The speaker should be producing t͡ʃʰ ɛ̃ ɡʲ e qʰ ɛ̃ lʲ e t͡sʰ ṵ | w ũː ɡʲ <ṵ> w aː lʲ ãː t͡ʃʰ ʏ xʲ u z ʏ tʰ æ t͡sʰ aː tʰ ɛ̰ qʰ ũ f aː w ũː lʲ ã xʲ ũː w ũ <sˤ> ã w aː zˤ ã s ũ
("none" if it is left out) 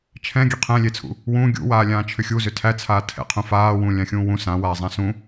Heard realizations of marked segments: ṵ, s

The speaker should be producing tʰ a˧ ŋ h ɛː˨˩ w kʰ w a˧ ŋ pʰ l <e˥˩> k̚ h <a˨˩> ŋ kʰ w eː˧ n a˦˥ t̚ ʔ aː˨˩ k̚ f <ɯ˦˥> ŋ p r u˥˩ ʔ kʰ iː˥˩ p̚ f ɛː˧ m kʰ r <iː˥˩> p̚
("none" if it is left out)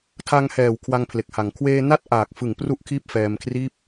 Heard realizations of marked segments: e˨˩, a˨˩, ɯ˨˩, iː˥˩

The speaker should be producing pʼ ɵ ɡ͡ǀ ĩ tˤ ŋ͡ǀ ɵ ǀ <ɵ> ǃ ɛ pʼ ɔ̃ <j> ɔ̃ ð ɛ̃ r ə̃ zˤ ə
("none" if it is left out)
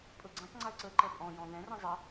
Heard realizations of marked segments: ə, j

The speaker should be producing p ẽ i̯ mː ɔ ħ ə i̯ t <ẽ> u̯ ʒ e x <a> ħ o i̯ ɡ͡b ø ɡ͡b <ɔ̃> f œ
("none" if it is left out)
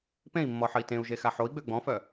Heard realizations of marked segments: ẽ, a, ɔ̃

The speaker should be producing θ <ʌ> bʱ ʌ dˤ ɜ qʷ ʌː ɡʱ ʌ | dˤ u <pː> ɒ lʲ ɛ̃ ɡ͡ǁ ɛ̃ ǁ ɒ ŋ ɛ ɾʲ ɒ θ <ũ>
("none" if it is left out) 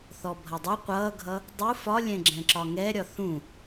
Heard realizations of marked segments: ɔ, f, ũ

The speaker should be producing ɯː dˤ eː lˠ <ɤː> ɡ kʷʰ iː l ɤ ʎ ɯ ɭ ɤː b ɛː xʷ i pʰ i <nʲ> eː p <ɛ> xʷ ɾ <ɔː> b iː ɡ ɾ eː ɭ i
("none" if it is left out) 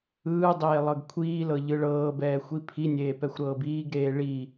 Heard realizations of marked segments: ɤ, nʲ, ɛ, ɤː

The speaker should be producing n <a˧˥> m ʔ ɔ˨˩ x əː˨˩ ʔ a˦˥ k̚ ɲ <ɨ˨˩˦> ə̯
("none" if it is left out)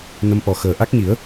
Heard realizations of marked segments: ə˧˥, i˨˩˦

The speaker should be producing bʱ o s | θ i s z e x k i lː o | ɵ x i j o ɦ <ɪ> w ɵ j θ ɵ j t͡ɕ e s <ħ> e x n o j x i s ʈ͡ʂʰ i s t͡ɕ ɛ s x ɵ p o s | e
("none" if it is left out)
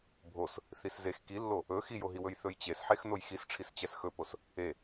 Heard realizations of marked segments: i, ħ

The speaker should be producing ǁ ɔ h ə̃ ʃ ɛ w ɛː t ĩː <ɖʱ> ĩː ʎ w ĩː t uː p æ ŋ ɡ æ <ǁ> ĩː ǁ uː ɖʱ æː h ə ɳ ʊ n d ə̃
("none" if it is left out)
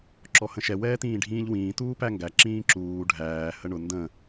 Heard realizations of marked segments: ɖʱ, ǁ

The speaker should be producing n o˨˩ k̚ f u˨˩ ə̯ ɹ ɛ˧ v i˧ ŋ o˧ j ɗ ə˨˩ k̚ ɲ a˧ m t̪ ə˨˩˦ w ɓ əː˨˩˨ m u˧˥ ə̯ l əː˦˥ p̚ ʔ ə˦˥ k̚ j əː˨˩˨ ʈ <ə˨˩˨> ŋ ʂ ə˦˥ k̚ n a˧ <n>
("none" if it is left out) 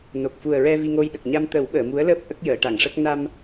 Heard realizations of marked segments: a˨˩˨, m

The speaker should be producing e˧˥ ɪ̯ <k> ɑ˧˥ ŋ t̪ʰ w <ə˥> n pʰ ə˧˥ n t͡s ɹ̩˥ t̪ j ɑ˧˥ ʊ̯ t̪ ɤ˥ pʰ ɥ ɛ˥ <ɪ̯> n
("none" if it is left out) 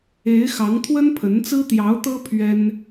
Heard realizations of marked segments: x, ə˥, none

